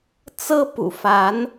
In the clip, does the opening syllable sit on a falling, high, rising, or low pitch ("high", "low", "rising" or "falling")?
high